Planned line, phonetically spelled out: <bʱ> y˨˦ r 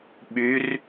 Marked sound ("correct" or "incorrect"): incorrect